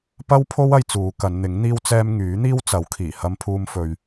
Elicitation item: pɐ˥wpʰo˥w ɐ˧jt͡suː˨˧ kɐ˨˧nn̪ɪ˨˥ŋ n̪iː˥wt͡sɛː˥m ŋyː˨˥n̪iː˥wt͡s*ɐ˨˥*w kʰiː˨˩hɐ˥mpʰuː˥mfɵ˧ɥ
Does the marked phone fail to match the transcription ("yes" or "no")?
no